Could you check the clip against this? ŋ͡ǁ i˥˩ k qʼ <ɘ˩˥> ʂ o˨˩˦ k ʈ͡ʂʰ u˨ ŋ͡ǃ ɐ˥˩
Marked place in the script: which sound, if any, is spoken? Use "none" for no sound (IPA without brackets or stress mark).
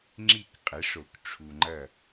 ɘ˩˥